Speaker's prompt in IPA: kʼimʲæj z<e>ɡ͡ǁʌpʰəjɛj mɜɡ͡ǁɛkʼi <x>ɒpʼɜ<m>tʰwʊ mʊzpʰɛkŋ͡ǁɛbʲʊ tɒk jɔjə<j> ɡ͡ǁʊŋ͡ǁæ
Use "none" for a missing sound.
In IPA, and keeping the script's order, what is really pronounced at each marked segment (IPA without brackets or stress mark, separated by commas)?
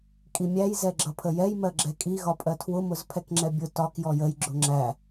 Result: ɛ, ɣ, none, j